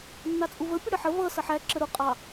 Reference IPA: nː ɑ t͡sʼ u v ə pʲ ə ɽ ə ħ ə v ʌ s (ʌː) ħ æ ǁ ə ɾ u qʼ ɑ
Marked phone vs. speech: incorrect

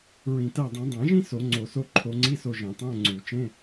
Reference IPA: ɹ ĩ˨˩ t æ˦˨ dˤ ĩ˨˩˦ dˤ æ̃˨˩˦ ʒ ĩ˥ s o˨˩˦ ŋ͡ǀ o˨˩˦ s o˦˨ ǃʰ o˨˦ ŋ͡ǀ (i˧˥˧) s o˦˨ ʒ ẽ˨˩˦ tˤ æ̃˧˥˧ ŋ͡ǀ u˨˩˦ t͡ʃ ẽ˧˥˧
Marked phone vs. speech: correct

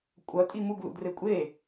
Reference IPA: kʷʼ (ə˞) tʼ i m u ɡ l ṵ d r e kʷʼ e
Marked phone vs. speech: incorrect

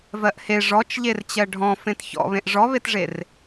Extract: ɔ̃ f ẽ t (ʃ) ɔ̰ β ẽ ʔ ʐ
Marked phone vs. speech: incorrect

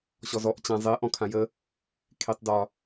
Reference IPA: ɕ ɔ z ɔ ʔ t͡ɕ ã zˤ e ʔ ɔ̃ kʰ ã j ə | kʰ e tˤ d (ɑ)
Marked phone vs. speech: incorrect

